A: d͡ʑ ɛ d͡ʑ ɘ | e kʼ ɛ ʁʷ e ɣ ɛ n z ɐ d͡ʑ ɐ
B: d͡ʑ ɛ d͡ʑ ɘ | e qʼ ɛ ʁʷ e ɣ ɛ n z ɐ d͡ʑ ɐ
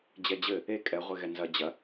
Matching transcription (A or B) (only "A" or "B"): A